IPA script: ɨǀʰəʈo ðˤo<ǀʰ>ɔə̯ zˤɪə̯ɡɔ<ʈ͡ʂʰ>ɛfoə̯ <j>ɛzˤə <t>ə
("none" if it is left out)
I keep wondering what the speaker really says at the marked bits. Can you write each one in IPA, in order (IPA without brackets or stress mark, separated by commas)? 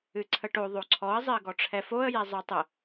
ǀʰ, ʈ͡ʂʰ, j, tˤ